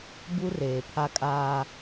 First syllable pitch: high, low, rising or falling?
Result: high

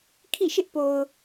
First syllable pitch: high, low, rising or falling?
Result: falling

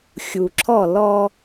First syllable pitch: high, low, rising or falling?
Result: low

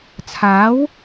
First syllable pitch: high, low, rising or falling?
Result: rising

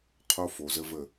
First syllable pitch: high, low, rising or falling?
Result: high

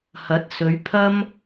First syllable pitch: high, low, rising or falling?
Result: rising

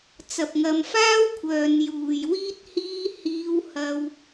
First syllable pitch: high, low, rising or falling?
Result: low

